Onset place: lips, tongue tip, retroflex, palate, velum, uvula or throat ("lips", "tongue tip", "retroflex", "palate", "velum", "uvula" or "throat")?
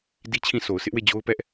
tongue tip